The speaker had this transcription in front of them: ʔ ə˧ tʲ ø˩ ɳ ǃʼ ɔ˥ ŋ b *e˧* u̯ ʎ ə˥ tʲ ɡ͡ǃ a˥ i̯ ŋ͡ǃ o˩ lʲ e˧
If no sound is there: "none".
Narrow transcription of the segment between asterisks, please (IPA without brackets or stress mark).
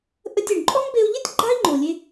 e˧